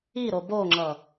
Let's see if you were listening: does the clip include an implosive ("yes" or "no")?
no